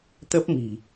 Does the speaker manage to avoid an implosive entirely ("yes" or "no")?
yes